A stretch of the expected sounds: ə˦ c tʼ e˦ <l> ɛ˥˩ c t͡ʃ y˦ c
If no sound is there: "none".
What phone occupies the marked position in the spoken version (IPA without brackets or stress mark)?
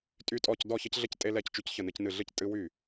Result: l